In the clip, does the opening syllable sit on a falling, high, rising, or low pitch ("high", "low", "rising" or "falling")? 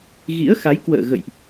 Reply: rising